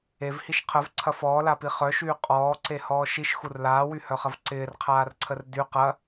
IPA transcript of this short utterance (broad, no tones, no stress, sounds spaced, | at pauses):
e v h i ʃ qʰ ə v ǀʰ ɐ f ɔː l a p i χ œ ʃ yː qʼ ɔː ǀ e h ɔː ʃ i ʃ x u r l aː w y h œ χ ɐ v ǀ ɪː r qʰ aː r ǀʰ ə r d y q ɐ